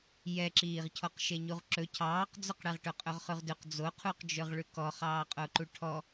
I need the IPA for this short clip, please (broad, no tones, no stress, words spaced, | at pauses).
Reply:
jɛǁiːʁcʰɔq ʃeɲuʁǁɵ cʰɑːqd͡zɵqɽɛʁʈɵ qʼɵʁχʉʁdʉq d͡zoqʰuqd͡ʒɵʁ ɭʉkɔ χɑːqʼoǃuʈʰɔ